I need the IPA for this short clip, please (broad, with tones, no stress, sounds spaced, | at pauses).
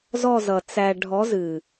z ɔ˦˨ z ʌ˨ t͡s æ˨ ɖʱ ɔ˨˦ z ɨ˨